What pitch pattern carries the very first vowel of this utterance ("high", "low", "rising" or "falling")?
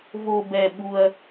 low